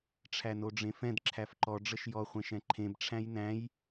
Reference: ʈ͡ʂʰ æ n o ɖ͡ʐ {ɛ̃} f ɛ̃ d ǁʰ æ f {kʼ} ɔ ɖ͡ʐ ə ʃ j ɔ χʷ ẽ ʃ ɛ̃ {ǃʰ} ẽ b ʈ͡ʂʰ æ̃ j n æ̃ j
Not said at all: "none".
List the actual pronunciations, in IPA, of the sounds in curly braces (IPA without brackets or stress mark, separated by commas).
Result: ẽ, ǃ, ǃʰ